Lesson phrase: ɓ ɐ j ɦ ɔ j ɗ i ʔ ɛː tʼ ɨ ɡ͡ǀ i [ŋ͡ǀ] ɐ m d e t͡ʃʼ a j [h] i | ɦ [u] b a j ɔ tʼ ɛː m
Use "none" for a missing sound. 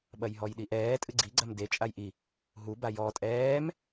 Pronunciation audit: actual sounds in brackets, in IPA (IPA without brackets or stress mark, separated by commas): ɡ͡ǀ, ʔ, u